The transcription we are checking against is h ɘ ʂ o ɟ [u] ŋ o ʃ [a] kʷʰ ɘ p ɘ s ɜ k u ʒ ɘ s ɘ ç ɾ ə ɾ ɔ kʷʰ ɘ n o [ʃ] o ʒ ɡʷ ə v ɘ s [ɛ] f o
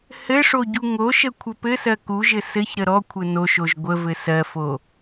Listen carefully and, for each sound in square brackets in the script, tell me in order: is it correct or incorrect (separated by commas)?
correct, incorrect, correct, incorrect